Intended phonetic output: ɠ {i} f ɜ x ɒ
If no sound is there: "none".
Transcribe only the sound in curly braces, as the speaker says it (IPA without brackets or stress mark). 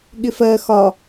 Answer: ɪ